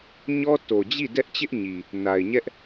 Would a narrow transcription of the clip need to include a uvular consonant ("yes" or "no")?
no